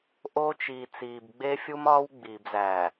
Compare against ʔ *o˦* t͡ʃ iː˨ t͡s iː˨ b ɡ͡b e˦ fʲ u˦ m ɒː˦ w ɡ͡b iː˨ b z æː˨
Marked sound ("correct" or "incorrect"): correct